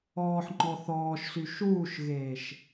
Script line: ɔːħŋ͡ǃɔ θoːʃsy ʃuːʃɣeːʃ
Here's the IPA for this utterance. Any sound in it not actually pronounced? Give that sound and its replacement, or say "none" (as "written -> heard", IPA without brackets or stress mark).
oː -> ɔː